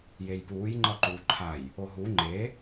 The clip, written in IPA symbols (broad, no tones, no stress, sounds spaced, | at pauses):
j e j p uː j ŋ͡ǃ ʌ ǃ uː ǃʰ a j | o ɦ u ŋ͡ǃ e